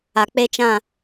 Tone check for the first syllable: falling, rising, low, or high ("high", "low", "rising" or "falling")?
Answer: low